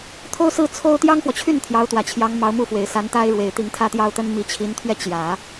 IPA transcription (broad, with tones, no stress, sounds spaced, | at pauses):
t̪ʰ o˥ ʊ̯ s ɹ̩˥˩ t͡sʰ o˥ ʊ̯ t̪ j ɑ˥ ŋ x w ɔ˨ t͡ɕʰ y˥˩ n t̪ʰ j ɑ˧˥ ʊ̯ t̪ w ä˨˩ t͡ɕʰ j ɑ˧˥ ŋ m ɑ˧˥ ʊ̯ m u˥˩ f w e˨˩ ɪ̯ s a˧˥ n t̪ a˥ ɪ̯ ɻ w e˨˩ ɪ̯ t̪ i˧˥ ŋ t̪ʰ ä˥˧ t̪ j ɑ˥˩ ʊ̯ t̪ ə˥ n m i˧˥ t͡ɕʰ i˧˥ n t̪ʰ ɥ ɛ˥˩ t͡ɕ j ä˨˩˦